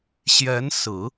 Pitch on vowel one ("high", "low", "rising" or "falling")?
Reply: rising